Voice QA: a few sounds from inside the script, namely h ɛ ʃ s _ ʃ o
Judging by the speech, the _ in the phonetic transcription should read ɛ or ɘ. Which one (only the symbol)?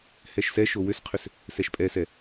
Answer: ɛ